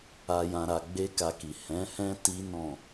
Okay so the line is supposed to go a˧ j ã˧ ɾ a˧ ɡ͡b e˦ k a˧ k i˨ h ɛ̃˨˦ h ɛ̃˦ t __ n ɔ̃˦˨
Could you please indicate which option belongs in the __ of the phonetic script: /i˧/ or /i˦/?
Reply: i˦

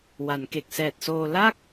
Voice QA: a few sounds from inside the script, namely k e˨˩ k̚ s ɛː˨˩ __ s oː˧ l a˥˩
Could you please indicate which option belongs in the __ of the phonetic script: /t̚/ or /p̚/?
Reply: t̚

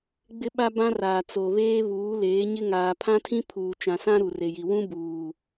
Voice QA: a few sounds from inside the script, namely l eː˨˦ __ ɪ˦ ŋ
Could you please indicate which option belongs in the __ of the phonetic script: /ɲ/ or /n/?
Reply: ɲ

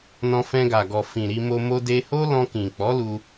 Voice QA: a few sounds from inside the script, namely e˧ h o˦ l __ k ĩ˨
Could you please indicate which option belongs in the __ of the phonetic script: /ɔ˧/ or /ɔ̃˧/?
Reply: ɔ̃˧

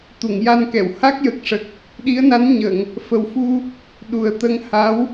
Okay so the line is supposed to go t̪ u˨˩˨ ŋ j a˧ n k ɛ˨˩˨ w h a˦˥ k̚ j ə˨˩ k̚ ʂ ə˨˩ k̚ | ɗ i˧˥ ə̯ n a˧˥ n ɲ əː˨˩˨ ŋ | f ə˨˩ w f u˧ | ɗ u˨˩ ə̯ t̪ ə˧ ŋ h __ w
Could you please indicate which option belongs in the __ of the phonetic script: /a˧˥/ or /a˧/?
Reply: a˧˥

